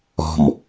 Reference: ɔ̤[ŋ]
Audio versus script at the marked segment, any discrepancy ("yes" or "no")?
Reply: yes